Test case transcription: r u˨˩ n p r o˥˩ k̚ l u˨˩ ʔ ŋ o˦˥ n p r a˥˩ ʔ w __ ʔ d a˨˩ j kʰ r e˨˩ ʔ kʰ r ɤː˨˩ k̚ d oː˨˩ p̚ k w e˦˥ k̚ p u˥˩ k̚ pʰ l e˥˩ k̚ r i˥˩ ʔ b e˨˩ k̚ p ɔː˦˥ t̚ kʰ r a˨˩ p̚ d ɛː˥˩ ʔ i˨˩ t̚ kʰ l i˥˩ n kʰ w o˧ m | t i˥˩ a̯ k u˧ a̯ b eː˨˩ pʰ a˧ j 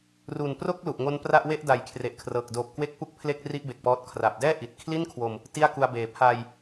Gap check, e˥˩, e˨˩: e˥˩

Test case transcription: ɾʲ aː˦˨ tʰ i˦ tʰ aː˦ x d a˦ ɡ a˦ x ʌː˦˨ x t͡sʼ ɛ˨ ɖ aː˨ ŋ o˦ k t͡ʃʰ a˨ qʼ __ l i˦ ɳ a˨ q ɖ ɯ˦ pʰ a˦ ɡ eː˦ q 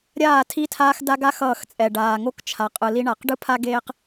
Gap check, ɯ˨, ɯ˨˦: ɯ˨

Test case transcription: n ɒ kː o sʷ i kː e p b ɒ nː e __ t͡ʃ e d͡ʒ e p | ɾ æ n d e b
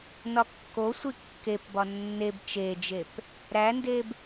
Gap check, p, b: b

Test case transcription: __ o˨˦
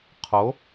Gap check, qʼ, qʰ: qʰ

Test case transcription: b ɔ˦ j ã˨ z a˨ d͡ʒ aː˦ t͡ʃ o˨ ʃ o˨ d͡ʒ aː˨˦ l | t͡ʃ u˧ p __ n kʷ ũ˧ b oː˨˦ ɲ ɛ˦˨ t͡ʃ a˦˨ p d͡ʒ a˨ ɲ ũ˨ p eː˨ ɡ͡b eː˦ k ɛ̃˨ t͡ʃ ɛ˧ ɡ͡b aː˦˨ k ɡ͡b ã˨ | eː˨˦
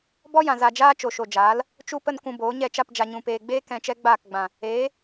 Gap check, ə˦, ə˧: ə˧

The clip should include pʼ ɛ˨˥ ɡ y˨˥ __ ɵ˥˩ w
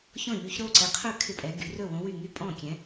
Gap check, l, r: r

